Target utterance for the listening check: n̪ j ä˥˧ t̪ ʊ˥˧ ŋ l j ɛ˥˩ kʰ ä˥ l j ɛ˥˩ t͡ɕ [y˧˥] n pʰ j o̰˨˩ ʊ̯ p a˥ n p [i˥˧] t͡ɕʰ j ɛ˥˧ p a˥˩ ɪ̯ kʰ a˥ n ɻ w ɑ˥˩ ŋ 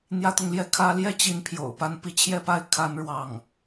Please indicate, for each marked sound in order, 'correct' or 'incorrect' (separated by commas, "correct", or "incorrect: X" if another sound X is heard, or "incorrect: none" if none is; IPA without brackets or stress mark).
incorrect: i˧˥, correct